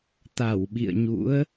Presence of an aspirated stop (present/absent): absent